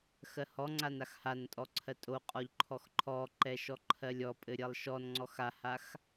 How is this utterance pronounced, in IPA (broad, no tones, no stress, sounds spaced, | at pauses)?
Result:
x ɜ h ɔ ŋ͡ǀ a n a x h a n tʼ ɔ ǀʰ ɜ tʼ o qʼ ɔ ʎ ǃʰ ɔ x ǃʰ ɔ ǃ ɛ ʃ ɔ ǃʰ ɜ lʲ ɔ pʼ ɘ ɾʲ ɜ lˠ ʃ ɔ n ŋ͡ǀ ɔ x a h a x